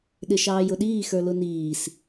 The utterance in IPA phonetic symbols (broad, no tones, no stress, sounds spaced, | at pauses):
ɗ ɪ ʃ ɑː j ʊ ɗ iː x ə˞ l ʊ n iː s